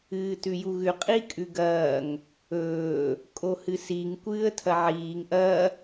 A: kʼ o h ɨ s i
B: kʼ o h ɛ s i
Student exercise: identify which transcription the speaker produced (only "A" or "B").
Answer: A